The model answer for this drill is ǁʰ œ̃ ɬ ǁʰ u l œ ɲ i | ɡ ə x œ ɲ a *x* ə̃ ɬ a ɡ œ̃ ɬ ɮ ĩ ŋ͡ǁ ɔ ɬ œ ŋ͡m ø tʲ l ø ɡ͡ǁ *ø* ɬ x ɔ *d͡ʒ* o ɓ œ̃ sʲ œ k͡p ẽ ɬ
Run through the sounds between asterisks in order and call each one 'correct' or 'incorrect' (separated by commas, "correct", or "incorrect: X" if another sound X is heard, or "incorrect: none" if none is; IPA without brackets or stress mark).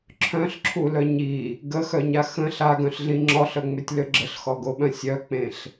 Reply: correct, incorrect: ə, incorrect: ɡ